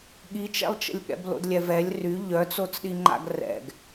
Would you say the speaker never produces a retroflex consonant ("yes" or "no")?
yes